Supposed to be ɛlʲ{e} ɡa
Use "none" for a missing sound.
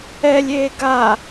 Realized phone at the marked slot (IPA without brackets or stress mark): eː